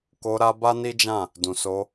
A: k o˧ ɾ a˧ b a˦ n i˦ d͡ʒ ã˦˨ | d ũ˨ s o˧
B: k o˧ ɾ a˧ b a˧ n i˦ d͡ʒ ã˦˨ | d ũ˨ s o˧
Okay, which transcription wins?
A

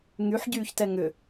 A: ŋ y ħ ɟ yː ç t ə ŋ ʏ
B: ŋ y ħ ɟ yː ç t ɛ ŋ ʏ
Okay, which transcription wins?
B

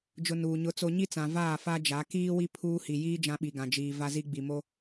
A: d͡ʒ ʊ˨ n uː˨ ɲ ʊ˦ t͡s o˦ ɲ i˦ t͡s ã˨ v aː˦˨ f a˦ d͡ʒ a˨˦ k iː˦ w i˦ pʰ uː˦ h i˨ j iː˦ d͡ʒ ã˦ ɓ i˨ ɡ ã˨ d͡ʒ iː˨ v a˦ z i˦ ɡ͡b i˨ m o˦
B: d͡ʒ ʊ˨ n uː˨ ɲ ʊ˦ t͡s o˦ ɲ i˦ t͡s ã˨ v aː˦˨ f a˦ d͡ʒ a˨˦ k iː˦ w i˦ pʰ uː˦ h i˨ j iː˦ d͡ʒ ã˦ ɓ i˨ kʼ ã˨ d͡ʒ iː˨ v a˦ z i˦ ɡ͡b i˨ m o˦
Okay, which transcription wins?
A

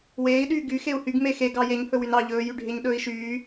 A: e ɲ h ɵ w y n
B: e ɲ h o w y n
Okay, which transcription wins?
A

